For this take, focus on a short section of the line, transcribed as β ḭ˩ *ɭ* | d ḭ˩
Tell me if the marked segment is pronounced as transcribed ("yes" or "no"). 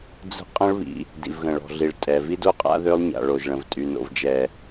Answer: no